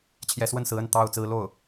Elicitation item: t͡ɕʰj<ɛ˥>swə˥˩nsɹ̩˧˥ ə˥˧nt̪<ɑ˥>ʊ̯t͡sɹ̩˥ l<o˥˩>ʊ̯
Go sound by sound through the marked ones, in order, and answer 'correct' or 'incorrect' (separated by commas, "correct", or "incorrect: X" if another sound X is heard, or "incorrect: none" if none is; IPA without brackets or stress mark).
incorrect: ɛ˧˥, incorrect: ɑ˥˩, correct